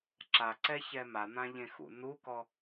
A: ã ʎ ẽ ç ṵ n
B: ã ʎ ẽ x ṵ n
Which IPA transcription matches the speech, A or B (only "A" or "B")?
B